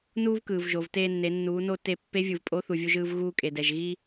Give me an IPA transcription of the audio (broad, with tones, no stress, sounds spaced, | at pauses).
n uː˥ v k ɯː˩ v ʒ o˩ v t eː˧ nː e˩˧ nː uː˩˧ n o˧ t e˧ pː e˧˥ vʲ ɯ˩ v pʼ o˧˥ θ u˩ vʲ u˧ ʒ ɯː˧ v ɣ uː˧ kʼ e˩ d ɛ˩ ʒ ɣ i˥